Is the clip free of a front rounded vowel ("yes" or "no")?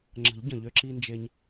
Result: no